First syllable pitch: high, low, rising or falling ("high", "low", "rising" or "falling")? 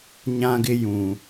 high